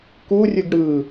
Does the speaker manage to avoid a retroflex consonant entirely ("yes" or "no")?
no